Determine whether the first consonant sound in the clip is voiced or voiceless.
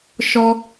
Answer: voiceless